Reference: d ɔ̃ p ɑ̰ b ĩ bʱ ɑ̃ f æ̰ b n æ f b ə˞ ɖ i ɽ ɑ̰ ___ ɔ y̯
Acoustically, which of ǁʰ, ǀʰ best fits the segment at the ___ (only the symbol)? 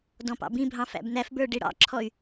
ǁʰ